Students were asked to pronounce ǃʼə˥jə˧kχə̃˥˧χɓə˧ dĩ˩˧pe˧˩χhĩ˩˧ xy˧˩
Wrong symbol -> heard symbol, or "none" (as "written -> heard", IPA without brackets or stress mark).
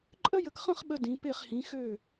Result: y˧˩ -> ø˧˩